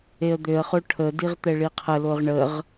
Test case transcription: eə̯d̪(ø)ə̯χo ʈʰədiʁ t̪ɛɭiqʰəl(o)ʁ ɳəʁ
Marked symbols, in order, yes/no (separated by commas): yes, yes